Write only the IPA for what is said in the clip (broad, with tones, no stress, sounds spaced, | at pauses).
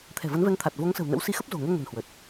t̪ʰ ɛ̤˨˩ v ə˨˦ n v ɛ˨˦ ŋ t̪ʰ a˨˩ t̚ v o˨˦ ŋ s ə̤˨˩ w n ə̰˧˥ w s i˨˦ x ə˦˥ p̚ z o̤˨˩ ŋ ɛ˧ ŋ ə̤˨˩ n h w ə˨˩ t̚